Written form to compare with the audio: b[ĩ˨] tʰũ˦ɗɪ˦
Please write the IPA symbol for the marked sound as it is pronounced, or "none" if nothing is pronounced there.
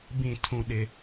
ĩ˦˨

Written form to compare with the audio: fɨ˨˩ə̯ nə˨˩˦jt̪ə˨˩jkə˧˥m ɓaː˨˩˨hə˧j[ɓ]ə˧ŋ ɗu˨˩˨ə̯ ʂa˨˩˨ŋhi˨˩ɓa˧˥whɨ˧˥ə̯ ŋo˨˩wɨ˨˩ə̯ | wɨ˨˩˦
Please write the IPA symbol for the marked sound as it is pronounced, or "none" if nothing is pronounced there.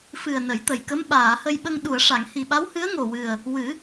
ɓ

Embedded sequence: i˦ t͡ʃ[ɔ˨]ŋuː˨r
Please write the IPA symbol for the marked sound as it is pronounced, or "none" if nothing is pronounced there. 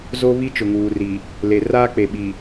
ʊ˨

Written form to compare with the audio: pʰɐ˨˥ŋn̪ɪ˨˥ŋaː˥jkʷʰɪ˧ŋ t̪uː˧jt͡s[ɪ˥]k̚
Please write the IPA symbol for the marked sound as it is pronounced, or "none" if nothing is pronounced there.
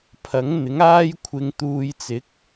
ɪ˨˥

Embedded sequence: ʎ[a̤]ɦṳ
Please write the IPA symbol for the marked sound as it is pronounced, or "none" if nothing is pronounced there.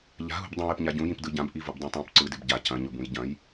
a̤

